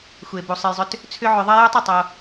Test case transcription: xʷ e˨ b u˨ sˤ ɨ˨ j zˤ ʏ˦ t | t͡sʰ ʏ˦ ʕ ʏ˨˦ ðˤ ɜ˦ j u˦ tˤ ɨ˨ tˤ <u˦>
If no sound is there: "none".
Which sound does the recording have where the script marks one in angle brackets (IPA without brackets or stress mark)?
o˦